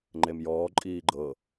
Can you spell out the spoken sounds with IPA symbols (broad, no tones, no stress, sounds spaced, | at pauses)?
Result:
ŋ͡ǃ e m j ɔː ǃʼ iː ɡ͡ǃ ɤ